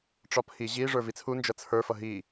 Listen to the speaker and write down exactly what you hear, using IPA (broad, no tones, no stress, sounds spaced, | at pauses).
ʈ͡ʂ ɒ pʰ i ʑ i ʐ ə˞ v i t͡sʰ u n d͡ʒ ʌ t͡sʰ ə˞ f ʌ ɦ i